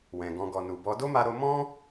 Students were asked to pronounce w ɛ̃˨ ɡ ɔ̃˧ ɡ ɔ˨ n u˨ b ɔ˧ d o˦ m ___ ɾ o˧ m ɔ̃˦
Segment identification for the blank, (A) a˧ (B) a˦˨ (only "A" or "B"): A